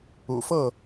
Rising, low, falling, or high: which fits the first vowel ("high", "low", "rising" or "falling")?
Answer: low